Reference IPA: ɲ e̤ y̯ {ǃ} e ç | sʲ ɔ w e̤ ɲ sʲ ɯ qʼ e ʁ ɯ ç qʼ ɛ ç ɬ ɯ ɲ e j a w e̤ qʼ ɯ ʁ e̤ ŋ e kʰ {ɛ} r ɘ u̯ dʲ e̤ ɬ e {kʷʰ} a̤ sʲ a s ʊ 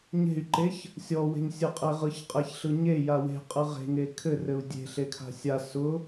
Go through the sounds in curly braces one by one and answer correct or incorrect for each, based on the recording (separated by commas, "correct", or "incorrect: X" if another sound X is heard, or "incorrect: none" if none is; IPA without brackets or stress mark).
correct, incorrect: ɘ, incorrect: kʰ